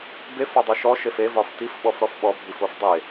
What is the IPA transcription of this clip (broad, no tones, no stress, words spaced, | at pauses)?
bef ɒdˤiʃɔ ʃefe vɒftif ɓɔfɾɔfɓɔ bʱifofdˤe